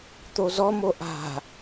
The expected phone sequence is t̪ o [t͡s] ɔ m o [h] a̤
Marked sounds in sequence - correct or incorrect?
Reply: incorrect, incorrect

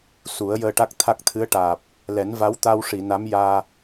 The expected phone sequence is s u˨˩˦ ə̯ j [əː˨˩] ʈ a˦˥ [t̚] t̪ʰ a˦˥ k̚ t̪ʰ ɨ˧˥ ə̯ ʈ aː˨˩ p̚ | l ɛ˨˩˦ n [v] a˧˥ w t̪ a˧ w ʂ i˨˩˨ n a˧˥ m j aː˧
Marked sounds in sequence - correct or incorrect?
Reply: incorrect, incorrect, correct

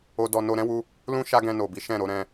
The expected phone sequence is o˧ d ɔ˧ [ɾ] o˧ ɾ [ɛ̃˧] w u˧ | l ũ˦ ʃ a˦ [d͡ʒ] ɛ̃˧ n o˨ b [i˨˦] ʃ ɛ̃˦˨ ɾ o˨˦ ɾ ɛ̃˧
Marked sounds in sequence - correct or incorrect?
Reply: incorrect, incorrect, incorrect, correct

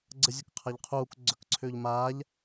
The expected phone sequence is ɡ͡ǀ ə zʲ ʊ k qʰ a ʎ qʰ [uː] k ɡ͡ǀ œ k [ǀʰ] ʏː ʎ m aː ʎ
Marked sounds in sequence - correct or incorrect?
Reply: correct, correct

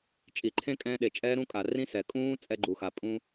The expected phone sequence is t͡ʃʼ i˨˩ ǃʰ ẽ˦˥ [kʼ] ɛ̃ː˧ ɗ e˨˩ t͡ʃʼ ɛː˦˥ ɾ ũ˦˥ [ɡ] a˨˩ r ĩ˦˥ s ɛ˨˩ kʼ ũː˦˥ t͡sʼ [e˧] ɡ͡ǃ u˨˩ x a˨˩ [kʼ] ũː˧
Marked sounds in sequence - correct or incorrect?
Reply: correct, incorrect, incorrect, incorrect

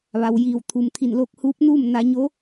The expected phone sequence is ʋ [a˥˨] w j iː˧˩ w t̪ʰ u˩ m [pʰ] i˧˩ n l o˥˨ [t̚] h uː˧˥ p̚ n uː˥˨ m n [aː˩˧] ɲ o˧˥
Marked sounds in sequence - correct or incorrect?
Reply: incorrect, incorrect, incorrect, incorrect

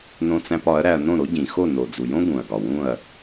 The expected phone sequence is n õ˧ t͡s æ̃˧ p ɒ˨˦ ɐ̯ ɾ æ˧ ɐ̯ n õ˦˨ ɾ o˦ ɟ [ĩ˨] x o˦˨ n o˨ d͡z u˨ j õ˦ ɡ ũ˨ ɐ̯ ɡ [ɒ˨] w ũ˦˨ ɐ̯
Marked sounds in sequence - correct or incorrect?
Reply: correct, correct

